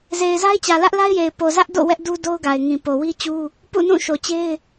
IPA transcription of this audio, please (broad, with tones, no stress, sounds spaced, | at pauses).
z e˨ ɪ̯ z a˦ ɪ̯ t͡ɕ ä˨ l ä˦ ʔ l a˦ ɪ̯ j e˨ ɪ̯ p o˨ z ä˦ ʔ d o̰˦˨ w ɛ˦ ʔ d u˦ d o˦ ʊ̯ ɡ a˨ ɪ̯ ŋ ĩ˨ p o˨ w i˦ t͡ɕ u˦ | p ṵ˦˨ n ũ˦˨ ʃ o˨ t͡ɕ e˦ ɪ̯